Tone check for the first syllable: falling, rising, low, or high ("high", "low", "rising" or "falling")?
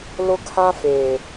high